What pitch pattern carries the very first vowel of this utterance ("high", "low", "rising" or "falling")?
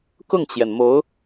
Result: falling